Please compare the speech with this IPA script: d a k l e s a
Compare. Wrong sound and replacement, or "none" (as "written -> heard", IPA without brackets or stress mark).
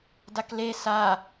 none